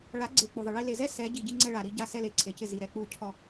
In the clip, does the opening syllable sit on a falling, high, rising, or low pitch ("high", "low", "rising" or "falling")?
rising